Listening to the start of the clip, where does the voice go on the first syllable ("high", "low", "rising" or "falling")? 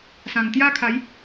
low